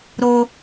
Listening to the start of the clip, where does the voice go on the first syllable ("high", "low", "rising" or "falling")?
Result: high